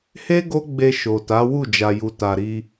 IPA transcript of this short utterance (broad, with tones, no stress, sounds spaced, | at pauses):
h e˦ ɡ o˦ ɡ͡b e˧ ʃ o˨ t a˨˦ w u˦˨ d͡ʒ a˨ j u˨ t a˨ ɾ i˧